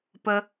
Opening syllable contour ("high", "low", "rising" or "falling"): low